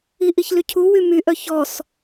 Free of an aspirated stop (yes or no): no